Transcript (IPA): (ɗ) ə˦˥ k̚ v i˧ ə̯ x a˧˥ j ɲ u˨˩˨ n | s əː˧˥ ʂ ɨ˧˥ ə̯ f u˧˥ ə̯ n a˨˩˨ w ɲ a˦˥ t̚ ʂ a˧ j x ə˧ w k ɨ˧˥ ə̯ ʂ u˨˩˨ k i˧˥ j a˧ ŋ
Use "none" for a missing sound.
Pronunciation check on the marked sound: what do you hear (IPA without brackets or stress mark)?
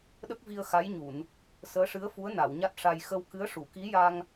ɗ